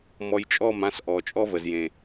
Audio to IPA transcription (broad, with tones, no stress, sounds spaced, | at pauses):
m ɔ˧ j t͡ʃʼ ɔ˦˨ m ã˧ s ʔ ɔ˨ t͡ʃʼ ɔ˦ v ə˨ z j ẽ˨